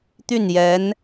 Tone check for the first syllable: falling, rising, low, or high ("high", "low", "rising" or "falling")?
falling